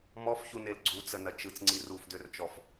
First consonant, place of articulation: labial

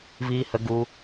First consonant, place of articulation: labial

